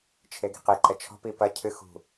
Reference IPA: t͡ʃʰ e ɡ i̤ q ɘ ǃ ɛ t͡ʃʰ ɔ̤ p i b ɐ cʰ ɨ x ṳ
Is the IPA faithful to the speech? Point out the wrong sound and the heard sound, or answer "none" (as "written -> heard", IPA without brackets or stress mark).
b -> p